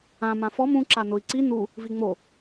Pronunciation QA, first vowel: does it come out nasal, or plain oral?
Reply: nasal